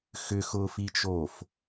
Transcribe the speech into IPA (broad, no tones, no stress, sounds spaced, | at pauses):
x ʏ x ʊː f i t͡ʃ oː f